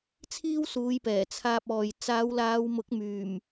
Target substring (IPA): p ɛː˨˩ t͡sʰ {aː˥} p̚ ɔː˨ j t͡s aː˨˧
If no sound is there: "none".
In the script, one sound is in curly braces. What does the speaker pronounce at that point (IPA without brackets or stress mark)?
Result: aː˧